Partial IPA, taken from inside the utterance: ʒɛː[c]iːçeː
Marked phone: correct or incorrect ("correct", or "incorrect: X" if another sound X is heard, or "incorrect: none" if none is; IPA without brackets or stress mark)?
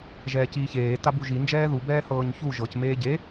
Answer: correct